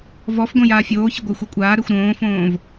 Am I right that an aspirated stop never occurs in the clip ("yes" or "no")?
yes